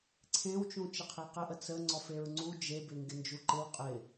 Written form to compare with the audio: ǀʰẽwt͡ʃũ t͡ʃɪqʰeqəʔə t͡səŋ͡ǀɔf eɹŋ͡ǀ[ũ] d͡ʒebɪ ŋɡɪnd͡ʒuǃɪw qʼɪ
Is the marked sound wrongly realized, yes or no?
yes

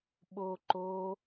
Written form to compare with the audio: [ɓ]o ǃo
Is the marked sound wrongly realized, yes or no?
no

